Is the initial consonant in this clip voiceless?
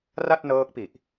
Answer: no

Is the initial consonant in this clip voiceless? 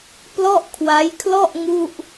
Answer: yes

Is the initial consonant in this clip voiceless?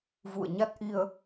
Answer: no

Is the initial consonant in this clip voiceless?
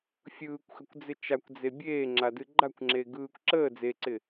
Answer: yes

